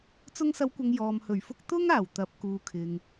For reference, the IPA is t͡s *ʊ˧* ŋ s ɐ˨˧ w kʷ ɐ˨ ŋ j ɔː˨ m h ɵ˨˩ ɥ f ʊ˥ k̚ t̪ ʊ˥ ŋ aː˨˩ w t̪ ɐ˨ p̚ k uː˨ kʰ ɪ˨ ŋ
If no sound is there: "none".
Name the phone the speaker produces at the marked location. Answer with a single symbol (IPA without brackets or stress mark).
ʊ˧